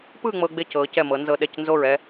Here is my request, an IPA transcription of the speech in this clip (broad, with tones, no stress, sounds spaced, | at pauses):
p ɯ˥˧ ŋ͡m ɤ˧ ɡ͡b e˧ c ɤ˩˧ c ɛ˧˩ m ɤ˩˧ n z ɤ˧ ɗ ɛ˧˩ c n z o˧˩ ɹ ɛ˧